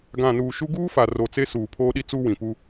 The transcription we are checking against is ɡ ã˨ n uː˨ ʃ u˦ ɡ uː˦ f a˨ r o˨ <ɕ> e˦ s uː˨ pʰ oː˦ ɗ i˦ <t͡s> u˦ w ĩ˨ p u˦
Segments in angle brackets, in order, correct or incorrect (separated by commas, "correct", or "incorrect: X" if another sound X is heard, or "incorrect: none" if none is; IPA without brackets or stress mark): incorrect: t͡s, correct